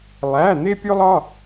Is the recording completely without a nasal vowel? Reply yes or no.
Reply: yes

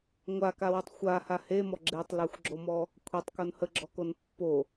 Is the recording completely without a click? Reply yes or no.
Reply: no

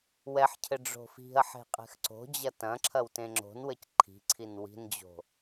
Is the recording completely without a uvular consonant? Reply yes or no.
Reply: no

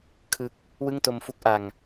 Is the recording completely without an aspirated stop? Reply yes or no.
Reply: no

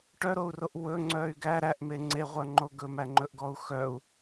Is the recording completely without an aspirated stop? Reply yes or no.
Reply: yes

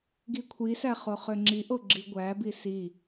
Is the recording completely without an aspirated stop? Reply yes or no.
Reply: no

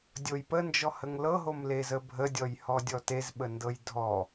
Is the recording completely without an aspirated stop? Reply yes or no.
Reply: yes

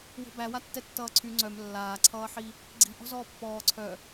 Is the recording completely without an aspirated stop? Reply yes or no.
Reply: no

